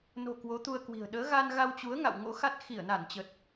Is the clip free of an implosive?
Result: no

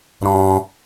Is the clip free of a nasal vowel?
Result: no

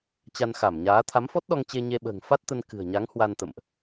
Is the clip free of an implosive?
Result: no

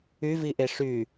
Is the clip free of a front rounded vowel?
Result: no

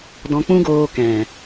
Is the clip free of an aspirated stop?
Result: yes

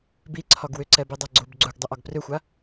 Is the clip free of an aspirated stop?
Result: no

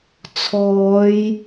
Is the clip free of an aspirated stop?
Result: no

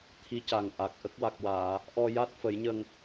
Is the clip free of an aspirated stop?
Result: no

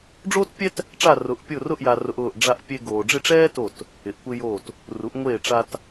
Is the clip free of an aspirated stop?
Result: yes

